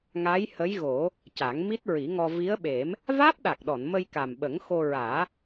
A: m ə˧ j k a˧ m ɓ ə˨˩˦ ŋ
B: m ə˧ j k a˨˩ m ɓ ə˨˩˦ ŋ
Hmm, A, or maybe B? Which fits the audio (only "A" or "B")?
B